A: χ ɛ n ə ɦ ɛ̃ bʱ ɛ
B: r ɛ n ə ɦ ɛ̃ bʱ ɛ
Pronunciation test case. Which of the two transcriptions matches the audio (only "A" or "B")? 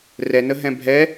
B